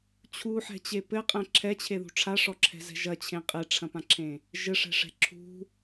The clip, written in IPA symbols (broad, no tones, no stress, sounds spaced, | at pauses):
t͡ɕʰ u ħ ɛ̤ t͡ɕ e p ɘ qʼ ɛ̃ ǁʰ ɛ t͡ɕʰ e ð ṳ ʈ͡ʂʰ a ʂ ɔ ǁʰ ɛ̤ z ɛ̤ ʒ ɐ t͡ɕʰ ẽ qʼ e ʈ͡ʂʰ ɐ̃ p ã ǁʰ ẽ | ʒ ɘ ʂ ɛ̤ ʂ ɛ̤ ǁʰ ṳ